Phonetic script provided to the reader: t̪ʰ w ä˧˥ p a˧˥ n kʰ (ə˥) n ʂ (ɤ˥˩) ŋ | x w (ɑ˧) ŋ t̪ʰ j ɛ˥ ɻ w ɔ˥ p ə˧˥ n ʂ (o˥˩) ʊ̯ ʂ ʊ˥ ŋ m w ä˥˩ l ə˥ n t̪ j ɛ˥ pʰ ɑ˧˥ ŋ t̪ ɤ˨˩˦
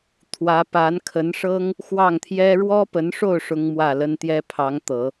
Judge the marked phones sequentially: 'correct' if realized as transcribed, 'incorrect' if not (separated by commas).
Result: incorrect, incorrect, incorrect, correct